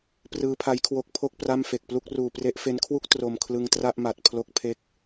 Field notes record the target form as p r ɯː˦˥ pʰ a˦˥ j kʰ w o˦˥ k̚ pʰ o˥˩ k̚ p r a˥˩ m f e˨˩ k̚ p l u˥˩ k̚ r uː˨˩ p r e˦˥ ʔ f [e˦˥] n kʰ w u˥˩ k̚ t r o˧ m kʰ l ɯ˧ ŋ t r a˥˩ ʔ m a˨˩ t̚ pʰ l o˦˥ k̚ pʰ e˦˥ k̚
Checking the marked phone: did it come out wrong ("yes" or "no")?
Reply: no